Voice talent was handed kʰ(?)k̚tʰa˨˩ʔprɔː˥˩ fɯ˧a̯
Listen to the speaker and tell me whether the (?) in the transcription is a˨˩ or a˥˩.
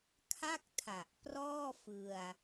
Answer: a˥˩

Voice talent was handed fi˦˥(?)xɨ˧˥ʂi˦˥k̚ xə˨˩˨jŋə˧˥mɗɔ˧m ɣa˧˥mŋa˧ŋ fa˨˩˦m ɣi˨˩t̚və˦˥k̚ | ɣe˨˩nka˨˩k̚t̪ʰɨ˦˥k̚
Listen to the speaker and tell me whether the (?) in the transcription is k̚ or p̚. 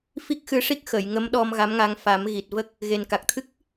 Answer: k̚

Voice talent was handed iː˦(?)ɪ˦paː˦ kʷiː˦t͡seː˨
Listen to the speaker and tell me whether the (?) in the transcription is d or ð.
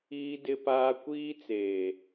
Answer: d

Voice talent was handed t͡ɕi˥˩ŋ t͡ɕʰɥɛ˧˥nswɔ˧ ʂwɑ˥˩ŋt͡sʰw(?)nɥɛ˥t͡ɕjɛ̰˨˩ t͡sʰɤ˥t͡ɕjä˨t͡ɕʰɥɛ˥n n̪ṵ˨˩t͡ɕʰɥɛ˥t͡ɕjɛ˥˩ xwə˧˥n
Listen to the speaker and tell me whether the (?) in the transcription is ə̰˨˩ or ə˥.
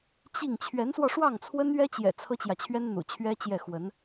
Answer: ə˥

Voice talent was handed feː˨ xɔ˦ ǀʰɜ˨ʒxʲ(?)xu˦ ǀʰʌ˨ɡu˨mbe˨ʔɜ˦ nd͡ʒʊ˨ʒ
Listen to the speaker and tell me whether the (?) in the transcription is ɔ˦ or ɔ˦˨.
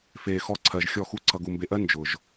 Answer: ɔ˦˨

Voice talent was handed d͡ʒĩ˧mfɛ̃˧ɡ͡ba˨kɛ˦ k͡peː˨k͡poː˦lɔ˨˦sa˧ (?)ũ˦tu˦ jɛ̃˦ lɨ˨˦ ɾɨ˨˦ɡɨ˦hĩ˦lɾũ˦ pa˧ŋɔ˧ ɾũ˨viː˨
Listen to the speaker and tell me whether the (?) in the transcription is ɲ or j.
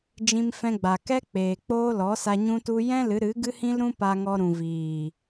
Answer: ɲ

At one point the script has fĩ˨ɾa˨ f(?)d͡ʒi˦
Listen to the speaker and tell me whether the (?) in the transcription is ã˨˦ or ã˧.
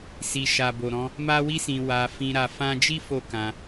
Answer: ã˧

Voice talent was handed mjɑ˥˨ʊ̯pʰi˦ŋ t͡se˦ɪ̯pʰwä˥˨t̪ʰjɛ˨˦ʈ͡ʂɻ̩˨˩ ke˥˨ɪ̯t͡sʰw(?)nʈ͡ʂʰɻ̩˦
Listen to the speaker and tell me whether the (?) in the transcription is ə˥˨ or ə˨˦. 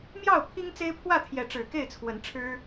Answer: ə˨˦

